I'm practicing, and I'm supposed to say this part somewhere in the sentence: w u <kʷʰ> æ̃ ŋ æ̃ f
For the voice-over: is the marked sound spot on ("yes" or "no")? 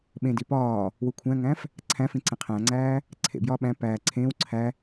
yes